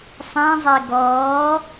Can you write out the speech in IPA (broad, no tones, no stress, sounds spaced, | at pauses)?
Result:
sˤ ɛ̃ zˤ ɛ ɡ ɔː